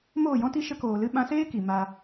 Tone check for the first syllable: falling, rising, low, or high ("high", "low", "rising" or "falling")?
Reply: falling